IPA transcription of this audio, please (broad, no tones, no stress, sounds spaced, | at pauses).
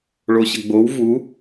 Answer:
ɭ o ɕ ə ɡ͡b o w v u